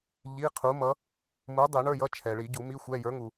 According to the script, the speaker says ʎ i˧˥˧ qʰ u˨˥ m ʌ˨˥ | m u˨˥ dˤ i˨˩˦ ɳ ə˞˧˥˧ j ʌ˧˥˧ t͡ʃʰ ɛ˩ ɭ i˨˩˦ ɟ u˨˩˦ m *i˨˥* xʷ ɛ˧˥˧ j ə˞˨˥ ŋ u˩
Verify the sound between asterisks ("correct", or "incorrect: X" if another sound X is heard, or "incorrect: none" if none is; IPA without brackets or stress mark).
incorrect: i˧˥˧